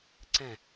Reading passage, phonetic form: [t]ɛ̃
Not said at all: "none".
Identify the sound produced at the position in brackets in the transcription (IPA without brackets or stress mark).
ǀ